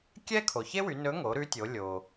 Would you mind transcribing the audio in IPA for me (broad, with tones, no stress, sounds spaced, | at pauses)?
kʲ ɛ˥ kʰ o˩ ç e˥ w y˩˧ n ɵ˧˥ ŋ o˩˧ ɾ ʉ˧˥ tʲ o˩˧ lʲ o˩